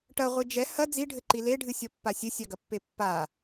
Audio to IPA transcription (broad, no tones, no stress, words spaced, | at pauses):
ʈɐʁʷɨ d͡ʒɛ hɐ d͡ziɖʱɘǃi leɖʱɨsʲɔpːa sʲɘsʲaɡɐpːe pːa